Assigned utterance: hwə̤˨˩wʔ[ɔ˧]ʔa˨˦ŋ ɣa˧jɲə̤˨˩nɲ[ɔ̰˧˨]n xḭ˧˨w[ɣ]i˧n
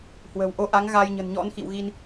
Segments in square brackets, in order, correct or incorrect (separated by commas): incorrect, incorrect, correct